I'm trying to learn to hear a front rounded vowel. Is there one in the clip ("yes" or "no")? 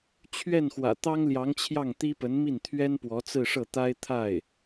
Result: no